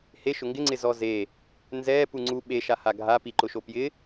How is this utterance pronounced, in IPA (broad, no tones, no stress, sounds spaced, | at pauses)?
h e ʃ ʊ ŋ ɡ ɪ ŋ͡ǀ ɪ z ɔ z e | n z ɛ p u ŋ͡ǀ u ɓ e ʃ a h a ɡʱ a p i ǃ ʊ ʃ o p j ɪ